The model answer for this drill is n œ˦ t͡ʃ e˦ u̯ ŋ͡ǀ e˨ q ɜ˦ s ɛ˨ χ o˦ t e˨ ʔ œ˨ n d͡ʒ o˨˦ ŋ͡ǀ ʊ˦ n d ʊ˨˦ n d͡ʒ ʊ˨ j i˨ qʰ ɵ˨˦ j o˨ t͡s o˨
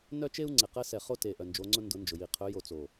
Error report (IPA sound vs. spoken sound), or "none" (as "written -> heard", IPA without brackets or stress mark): none